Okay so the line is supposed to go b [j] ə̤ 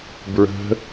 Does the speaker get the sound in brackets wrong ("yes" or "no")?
yes